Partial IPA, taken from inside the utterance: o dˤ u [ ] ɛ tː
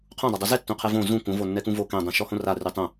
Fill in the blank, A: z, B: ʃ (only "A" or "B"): A